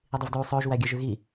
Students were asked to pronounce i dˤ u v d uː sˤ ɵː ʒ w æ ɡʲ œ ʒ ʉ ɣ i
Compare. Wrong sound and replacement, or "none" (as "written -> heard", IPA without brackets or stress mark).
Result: none